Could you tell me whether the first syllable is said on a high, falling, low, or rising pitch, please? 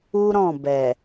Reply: high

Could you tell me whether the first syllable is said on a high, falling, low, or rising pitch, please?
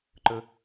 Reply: high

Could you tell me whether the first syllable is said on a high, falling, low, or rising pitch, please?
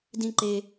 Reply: high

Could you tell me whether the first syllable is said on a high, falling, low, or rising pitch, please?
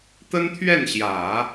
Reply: high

